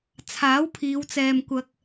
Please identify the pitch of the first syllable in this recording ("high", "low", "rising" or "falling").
rising